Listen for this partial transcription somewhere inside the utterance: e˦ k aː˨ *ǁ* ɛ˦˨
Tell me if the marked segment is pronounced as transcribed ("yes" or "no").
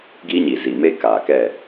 no